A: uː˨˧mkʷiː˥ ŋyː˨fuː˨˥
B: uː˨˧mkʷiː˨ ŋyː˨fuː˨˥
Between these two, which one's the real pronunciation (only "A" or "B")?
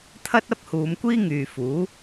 A